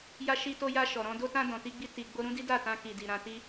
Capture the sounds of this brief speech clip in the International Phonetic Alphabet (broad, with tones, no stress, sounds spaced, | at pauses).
j a˧ ʃ i˧ t o˧ j a˧ ʃ ɔ˨ ɾ ɔ̃˧ d o˧ t ã˧ d ɔ̃˨ t i˧ ɡ͡b i˧ t i˨ ɡ͡b o˧ ɾ ũ˦ d i˦ d a˦˨ t ã˧ k i˨ d i˨ ɾ ã˧ t i˦